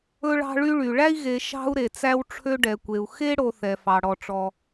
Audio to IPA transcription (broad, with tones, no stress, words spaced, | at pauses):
ɵ˦ɭɑ̤˦ɭy˦ɭy˨ ɭæ˦i̯ɣe˨ ʃɑ̤˦u̯ɾe˨ t͡sæ˦wʈ͡ʂʰø˦ɖɛ˨kʷe˨u̯ xe˦ ɽo˦θɛ˨fɑ˨ ɽɔ˨ʈ͡ʂɔ˨